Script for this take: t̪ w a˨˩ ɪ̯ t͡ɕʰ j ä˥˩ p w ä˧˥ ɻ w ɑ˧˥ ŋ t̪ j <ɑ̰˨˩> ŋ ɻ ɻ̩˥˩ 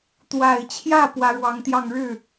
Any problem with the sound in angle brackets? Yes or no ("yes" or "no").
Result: yes